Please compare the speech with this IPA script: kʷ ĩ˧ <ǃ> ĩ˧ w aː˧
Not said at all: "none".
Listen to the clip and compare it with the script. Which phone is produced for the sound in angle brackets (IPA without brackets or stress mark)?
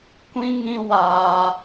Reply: ŋ